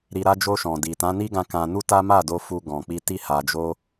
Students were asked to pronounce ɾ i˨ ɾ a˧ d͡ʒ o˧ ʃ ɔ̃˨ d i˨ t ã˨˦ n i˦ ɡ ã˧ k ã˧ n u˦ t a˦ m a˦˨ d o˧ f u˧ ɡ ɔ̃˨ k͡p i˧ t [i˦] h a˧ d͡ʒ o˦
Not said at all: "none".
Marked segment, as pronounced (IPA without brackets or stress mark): i˦